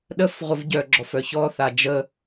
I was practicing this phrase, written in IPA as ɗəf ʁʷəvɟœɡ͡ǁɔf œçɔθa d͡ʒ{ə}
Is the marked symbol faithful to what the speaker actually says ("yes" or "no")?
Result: yes